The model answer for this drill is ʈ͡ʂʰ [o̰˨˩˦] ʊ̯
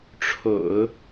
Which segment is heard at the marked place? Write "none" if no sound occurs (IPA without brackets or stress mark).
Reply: o̰˨˩˦